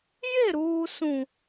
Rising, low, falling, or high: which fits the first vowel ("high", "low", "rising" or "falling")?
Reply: falling